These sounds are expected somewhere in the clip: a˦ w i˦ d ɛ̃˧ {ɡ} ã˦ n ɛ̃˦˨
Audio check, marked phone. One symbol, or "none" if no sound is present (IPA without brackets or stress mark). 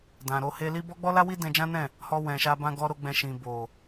d͡ʒ